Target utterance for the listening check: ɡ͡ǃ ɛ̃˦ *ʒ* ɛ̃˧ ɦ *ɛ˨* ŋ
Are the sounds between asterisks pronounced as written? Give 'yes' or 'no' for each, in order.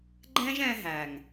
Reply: yes, no

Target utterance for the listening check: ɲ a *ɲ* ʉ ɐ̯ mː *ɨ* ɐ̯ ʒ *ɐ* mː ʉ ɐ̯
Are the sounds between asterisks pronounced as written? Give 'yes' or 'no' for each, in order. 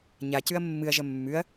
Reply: no, yes, yes

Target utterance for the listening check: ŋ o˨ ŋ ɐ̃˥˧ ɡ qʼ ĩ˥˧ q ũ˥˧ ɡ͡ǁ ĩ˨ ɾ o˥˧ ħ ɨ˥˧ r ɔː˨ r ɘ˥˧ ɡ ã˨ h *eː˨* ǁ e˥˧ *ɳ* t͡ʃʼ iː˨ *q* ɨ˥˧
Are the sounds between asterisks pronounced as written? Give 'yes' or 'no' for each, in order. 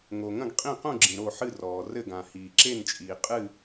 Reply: no, no, no

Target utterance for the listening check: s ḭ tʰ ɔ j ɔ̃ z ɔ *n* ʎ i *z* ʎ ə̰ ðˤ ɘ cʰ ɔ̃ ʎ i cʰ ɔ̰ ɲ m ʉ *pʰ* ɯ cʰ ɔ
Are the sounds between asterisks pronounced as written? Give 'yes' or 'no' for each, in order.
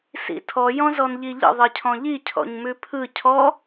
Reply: yes, no, yes

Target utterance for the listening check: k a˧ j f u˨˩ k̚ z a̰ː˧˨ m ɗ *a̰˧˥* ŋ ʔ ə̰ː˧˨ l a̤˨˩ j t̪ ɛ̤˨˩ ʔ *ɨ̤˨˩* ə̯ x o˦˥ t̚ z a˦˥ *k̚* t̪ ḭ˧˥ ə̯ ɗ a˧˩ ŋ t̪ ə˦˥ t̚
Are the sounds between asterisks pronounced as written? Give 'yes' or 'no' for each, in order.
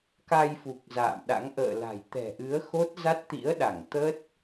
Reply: yes, no, no

